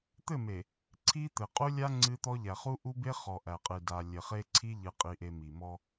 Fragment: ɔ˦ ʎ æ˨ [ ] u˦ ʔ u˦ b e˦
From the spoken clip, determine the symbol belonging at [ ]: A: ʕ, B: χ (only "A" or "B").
B